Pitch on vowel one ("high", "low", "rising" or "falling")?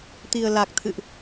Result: low